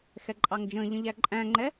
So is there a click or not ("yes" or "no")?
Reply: yes